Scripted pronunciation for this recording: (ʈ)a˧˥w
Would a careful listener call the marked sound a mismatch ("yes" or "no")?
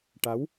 no